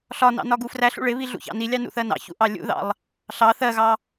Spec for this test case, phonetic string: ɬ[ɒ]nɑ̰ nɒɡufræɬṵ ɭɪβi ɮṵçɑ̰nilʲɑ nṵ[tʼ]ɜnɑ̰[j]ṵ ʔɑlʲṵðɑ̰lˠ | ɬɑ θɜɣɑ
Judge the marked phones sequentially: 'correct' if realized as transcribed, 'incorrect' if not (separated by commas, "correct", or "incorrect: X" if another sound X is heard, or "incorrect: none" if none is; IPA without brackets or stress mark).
correct, incorrect: θ, incorrect: ç